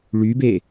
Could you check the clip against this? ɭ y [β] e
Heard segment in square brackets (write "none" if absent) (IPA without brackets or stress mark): b